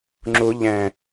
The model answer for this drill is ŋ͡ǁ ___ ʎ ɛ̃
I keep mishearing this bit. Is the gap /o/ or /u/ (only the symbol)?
u